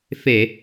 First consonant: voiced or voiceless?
voiceless